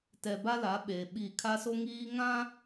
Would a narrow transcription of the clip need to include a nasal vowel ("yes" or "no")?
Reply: yes